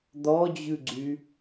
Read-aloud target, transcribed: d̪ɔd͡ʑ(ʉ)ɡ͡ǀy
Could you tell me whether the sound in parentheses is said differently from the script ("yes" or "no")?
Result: no